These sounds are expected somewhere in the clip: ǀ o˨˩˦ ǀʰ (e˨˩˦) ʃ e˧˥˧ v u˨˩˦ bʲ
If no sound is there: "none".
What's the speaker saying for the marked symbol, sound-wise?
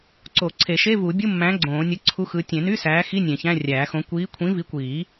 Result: e˨˩˦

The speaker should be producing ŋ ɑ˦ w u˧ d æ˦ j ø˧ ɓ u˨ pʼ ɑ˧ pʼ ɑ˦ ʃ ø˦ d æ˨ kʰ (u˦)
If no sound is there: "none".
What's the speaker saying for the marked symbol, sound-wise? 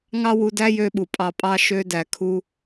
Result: u˦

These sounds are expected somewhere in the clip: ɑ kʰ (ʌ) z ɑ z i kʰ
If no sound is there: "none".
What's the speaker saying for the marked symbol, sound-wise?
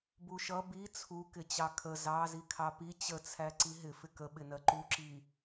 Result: ə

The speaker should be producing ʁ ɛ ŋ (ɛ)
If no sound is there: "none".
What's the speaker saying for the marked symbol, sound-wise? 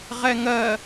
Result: ɜ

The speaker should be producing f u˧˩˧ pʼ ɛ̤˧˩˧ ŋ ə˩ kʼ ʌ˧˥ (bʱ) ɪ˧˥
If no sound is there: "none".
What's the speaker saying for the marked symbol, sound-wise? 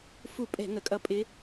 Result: pʼ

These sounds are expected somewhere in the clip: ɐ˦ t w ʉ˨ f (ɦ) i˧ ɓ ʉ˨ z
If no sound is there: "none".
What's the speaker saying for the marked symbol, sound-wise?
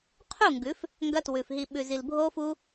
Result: ɦ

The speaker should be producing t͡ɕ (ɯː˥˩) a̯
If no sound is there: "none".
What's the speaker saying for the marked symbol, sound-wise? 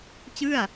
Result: ɯ˥˩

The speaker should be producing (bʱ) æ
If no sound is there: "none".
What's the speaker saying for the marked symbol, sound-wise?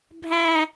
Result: bʱ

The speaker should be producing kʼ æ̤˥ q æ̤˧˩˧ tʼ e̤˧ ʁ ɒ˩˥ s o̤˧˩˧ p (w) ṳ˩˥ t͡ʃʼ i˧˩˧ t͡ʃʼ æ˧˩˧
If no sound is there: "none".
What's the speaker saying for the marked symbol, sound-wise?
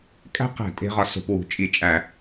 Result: w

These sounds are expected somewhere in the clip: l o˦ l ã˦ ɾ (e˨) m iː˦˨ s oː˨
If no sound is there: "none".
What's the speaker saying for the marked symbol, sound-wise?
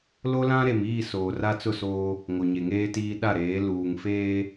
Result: e˨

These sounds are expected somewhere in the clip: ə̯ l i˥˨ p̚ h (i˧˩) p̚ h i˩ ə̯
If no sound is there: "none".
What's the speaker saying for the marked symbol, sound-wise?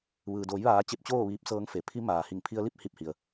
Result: i˧˩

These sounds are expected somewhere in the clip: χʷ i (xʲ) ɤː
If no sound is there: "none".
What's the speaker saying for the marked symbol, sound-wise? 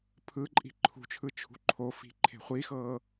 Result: x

